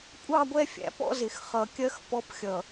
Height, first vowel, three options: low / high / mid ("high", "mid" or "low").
low